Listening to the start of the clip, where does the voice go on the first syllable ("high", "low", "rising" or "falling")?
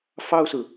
high